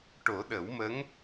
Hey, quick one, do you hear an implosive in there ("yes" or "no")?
yes